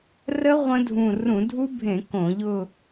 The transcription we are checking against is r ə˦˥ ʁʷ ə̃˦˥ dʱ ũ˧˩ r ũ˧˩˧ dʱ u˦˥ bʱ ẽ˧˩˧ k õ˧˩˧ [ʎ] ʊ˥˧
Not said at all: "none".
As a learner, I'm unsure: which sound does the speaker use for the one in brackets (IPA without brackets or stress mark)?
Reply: ʎ